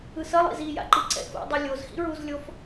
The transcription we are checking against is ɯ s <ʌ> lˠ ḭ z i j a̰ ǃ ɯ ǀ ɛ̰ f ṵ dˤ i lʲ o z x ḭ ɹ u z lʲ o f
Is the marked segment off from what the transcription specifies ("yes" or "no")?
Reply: no